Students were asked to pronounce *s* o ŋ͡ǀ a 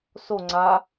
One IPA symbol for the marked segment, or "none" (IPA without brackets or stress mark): s